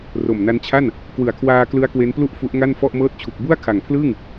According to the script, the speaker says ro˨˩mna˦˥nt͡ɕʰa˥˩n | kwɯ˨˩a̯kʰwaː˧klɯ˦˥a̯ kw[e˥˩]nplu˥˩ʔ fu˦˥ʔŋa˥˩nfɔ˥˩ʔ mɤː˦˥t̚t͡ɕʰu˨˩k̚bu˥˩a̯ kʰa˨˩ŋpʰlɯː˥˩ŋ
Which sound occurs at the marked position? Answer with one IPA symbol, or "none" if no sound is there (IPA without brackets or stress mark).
e˦˥